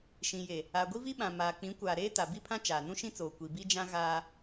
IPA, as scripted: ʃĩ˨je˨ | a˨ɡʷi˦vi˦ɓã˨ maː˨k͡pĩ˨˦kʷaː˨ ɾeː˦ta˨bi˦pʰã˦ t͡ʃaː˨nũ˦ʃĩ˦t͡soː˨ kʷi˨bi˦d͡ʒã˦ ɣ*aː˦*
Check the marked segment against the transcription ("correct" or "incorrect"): correct